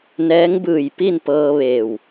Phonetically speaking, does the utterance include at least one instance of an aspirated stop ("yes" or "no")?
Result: no